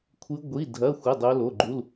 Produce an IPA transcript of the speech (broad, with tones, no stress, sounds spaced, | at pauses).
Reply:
kʷʰ ɨ˦˥ ɡʷ i˧˥˧ dʱ ɐ˧˥˧ xʷ ɐ˧˥˧ dˤ o˦˥ l o˧˥˧ ɡ͡ǃ u˧˥˧ l